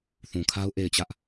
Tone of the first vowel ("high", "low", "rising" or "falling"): low